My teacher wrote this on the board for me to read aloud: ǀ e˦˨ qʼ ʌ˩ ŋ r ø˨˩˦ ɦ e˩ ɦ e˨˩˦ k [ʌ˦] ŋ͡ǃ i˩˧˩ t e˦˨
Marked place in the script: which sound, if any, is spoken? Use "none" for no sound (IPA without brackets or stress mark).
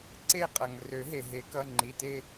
ʌ˩˧˩